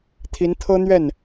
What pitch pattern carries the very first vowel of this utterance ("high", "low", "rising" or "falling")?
rising